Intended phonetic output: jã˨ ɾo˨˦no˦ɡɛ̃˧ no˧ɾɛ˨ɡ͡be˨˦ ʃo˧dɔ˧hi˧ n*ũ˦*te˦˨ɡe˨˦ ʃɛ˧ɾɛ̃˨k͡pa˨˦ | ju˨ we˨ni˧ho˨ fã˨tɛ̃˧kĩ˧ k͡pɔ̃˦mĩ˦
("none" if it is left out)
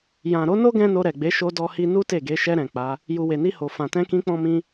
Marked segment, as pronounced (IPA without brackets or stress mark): u˦